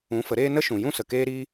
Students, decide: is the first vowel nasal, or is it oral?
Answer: nasal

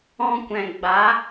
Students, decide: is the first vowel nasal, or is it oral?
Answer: nasal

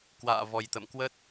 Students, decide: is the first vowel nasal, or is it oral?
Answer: oral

